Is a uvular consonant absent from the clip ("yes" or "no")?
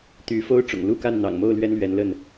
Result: yes